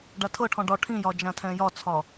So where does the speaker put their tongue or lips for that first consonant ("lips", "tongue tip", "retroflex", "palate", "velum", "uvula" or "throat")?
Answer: retroflex